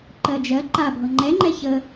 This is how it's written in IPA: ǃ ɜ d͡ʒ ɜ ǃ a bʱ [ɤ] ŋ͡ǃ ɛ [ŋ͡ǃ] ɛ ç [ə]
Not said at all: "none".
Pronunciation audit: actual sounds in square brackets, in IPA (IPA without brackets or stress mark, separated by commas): ɤ, ŋ͡ǃ, ə